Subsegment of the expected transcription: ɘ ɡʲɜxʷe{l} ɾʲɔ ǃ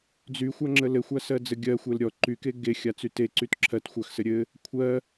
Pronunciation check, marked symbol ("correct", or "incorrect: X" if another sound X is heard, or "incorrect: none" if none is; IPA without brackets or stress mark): correct